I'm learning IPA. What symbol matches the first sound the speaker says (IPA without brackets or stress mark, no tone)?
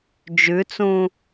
d͡ʒ